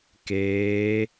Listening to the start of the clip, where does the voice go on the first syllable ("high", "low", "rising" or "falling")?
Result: rising